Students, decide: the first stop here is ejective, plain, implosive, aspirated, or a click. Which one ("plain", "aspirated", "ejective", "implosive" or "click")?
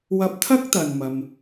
plain